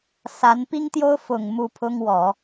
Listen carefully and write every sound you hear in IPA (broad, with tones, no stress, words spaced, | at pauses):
sa˧˥n pi˥ŋt̪jo˥ʊ̯ fʊ˨˩ŋ mu˥˩ pʰʊ˥ŋwɔ˨˩˦